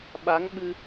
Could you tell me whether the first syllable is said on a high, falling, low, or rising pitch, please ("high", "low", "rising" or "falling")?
rising